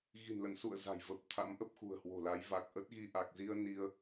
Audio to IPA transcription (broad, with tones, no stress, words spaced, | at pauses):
ɣi̤˨˩nlə̰˧˨nsṵ˧˨ə̯ za̤˨˩jvə˨˩p̚t̪ʰa̰˧˥m ʔə˦˥p̚xṳ˨˩ə̯hwo̤˨˩la˨˦j va˨˩k̚ ʔə˦˥t̚ɣi˧ ʔa˨˩k̚zi˧ə̯ ni˧ə̯